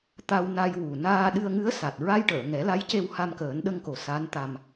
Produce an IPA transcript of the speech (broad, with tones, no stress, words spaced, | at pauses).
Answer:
t̪a˧w na˧jwu˨˩ naː˧ɗɨ˧ə̯ŋɨ˧˥ə̯sa˨˩t̚ ɹa˧jʈəː˨˩˨ ŋɛ˨˩˦la˧˥jce˧w ha˧mkəː˨˩˦nɗə˧ŋko˨˩ sa˧˥nt̪a˧m